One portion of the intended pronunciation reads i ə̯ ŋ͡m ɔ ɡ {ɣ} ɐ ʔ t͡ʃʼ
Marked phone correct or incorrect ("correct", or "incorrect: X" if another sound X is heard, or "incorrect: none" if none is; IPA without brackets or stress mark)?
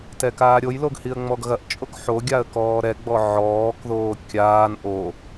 correct